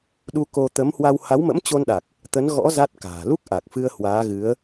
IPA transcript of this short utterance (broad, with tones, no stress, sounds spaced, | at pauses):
ɗ u˧ k o˧ t̪ ə˨˦ m h w a˧ w h a˨˦ w m ə̰˧˥ m t͡ɕ o˧ n ɗ a˨˩ k̚ | t̪ ə˨˦ n ɣ ɔ̰˧˥ z a˦˥ t̚ k a̤ː˨˩ l u˦˥ k̚ ʔ a˨˩ k̚ f ɨ˧ ə̯ h w aː˨˦ ɣ ɨ˨˦ ə̯